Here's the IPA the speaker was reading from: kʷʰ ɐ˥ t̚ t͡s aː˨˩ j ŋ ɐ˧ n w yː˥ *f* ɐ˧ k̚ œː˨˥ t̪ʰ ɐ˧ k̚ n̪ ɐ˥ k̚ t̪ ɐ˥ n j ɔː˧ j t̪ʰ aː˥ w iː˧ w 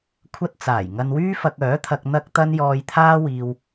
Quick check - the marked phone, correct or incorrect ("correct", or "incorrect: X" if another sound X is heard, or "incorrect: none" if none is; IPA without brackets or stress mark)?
correct